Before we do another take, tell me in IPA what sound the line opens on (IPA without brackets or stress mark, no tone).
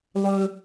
lˠ